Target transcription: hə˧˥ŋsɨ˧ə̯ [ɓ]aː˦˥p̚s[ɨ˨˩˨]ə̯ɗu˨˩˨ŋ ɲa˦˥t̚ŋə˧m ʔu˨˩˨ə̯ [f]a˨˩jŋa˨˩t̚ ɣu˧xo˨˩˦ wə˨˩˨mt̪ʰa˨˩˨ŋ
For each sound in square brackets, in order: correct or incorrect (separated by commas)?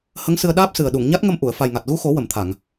incorrect, incorrect, correct